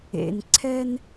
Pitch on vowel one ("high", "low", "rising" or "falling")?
low